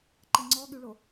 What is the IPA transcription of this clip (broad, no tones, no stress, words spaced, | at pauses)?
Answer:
ǃəŋ͡ǀɔɠyɭo